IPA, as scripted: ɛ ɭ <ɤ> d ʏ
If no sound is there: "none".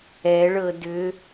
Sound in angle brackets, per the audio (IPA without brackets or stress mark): ɤ